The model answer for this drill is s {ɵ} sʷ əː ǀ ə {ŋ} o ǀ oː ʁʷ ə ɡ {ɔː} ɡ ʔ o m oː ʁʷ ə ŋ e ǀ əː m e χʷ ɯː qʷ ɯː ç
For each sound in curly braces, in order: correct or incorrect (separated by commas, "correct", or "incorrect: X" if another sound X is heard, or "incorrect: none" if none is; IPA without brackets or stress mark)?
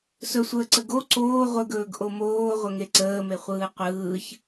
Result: correct, incorrect: ɡ, incorrect: ɵː